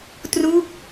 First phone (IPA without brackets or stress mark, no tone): t